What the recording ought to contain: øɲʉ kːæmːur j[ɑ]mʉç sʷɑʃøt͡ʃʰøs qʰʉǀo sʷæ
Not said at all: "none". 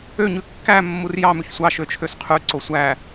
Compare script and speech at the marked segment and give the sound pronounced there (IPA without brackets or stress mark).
ɑ